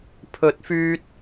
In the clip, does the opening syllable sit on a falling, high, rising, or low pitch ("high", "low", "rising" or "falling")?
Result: rising